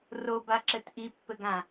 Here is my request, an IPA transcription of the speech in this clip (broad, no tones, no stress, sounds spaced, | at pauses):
r o b a ǁ ɘ t ʔ i pː ɘ ɡ ã